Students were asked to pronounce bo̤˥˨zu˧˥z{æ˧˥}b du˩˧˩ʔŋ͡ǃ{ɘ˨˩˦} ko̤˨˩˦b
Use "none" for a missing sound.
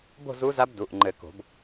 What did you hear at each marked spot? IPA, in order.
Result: a˧˥, ɘ˨˩˦

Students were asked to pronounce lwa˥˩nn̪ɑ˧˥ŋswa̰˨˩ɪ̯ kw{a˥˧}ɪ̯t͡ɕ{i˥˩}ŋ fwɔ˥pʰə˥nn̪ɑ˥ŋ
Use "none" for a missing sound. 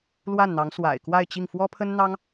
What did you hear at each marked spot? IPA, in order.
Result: a˥˧, i˥˩

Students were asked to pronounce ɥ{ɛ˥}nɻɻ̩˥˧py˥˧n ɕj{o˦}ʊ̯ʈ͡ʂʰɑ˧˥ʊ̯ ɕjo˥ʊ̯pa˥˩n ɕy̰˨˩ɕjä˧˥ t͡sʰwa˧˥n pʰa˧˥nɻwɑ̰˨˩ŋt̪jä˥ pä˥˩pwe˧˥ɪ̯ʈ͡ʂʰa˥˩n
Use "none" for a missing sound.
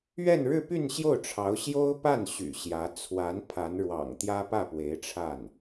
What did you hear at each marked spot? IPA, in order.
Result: ɛ˥˧, o˥˩

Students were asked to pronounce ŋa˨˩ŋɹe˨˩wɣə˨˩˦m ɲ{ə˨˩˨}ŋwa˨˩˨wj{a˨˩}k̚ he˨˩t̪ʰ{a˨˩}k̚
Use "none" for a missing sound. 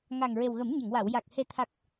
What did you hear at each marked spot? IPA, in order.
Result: ə˨˩˨, a˨˩, a˨˩

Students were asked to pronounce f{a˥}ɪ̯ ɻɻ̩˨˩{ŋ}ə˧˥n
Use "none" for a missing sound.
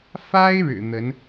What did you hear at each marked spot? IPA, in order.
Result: a˥, n̪

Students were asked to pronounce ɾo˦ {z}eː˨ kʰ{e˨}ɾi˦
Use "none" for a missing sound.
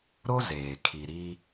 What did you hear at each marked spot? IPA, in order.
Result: z, i˨

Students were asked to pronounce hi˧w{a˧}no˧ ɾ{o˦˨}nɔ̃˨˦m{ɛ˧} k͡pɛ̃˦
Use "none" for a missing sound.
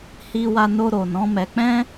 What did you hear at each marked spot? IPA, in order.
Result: a˧, o˨, ɛ˧

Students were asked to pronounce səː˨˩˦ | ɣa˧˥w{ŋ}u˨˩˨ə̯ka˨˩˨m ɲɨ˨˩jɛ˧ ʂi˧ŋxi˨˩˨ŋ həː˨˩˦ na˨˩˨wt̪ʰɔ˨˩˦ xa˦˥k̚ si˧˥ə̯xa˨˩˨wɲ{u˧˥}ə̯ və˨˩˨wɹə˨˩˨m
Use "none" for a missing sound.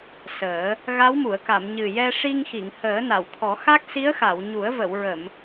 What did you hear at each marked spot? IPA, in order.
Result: m, u˨˩˦

